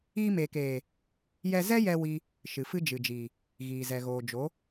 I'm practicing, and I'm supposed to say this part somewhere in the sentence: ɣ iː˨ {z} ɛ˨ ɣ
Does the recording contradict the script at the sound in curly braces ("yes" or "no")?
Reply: no